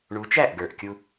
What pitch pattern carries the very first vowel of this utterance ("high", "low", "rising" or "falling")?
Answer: rising